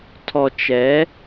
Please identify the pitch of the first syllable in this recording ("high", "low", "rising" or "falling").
low